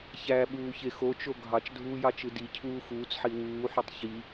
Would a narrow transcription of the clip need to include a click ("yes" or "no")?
no